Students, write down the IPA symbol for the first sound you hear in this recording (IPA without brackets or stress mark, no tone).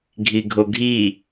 ɡʱ